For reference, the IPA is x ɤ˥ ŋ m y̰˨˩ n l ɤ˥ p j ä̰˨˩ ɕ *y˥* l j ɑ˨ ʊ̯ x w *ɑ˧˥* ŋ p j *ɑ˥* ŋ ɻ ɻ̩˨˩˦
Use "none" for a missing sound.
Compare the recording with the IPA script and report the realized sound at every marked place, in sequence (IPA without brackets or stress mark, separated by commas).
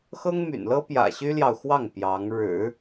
y˥, ɑ˥˩, ɑ˧˥